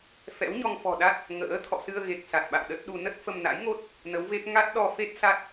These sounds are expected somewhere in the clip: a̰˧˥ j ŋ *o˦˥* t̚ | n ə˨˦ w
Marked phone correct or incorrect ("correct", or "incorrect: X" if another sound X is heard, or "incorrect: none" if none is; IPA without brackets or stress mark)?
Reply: correct